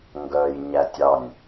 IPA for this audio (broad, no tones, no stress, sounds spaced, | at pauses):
ŋ ɡ œ j ɲ æ tʲ ɑ nʲ